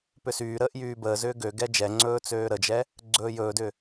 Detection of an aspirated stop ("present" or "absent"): absent